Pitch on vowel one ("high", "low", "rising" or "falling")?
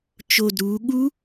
low